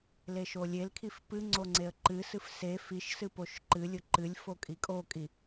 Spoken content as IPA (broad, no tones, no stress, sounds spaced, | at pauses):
l e ʃ o lʲ e l kʰ i f p ɨ ŋ͡ǀ o ŋ͡ǀ e ə̯ ǃ ɨ s ɨ f s e f i ʃ s ɨ p o ʃ ǃ ɨ lʲ ʊ ǃ ɨ lʲ f o kʼ i kʼ o kʼ i